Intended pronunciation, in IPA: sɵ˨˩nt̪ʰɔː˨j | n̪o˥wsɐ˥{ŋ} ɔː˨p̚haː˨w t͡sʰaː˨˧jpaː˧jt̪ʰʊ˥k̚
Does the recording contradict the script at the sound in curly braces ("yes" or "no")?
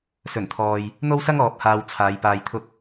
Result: no